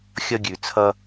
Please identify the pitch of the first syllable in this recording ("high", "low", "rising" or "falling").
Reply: high